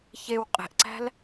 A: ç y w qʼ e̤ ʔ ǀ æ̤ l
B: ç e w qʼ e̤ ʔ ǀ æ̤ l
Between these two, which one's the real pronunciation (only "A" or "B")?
B